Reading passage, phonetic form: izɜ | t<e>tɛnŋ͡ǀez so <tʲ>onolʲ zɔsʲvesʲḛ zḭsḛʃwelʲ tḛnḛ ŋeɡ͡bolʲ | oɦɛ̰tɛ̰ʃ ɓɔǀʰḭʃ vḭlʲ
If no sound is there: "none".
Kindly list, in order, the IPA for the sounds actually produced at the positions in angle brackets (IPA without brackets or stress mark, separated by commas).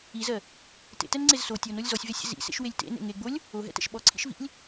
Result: ḛ, tʲ